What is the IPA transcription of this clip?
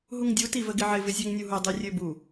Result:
ɦuŋdʲu tivəɡɪʕɪ vɪzʲøŋnʲuɦu dˤyrʲøbu

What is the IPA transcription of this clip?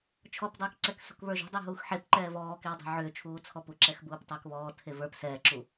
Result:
t͡ʃʰɔpdˤəːkǀɛk sṳkβə˞ʒṳ dˤəːɦuːxħep ǃɛːvɔːkewdˤe̤ ʕʏːt͡ʃʰuː t͡sʰɔpuǁɛx buːptˤəːkβɔː tʰevə˞p sɛːǁu

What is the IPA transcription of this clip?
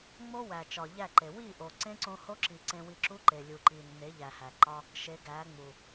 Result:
ŋ͡mo˦wæ˨ t͡ʃɒ˨ʎæ˦˨ǃe˨ wi˦˨ʔo˨ ǀẽ˦ǀõ˧ho˦ǁi˨ ǀẽ˧wi˧ǁu˦ ǃe˨lʲu˨ǃi˨nːe˨˦ ʎæ˨hæ˨ǃɒ˦ | ʃe˨˦ɡæ˨˦ŋ͡mu˨

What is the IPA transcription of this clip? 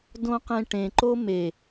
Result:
dõqẽʈẽ ǃome

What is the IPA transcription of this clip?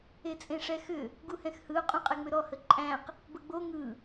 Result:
et͡sʼẽʂɛxʏ | ɡuhɛ̃xhɯʊ̯ qʼũqʼɛŋ͡mʏɾɔ həǃʼæ̃q | bəɡ͡bo ŋɯ

